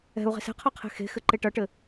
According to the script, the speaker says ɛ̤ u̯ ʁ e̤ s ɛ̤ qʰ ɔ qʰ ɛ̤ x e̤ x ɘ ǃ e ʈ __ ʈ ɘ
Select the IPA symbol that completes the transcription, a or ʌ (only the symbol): ʌ